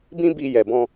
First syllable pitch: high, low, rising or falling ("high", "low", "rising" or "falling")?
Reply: high